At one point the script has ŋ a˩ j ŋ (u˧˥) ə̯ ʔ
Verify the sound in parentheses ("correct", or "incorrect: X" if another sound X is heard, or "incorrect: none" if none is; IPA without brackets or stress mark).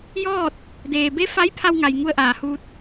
correct